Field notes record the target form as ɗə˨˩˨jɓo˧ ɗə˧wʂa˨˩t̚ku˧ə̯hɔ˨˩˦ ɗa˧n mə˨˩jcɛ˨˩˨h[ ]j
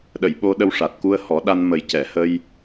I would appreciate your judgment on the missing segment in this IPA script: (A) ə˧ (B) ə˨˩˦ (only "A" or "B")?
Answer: A